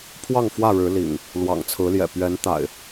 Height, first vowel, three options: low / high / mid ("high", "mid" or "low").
low